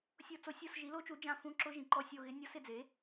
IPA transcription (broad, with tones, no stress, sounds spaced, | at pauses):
sʲ o˦˨ t͡s o˧˥ sʲ o˦˨ s ʒ i˩˥ l o˧˥ t͡ʃ u˩˥ d͡ʒ ã˦˨ f ũ˧˥ ǁ ʊ˧˥ ʒ ĩ˩˥ ǃ ɔ˦˨ sʲ o˦˨ ɣ ɪ˧˥ nʲ ɔ˧˥ s ɪ˦˨ d͡z e˩˥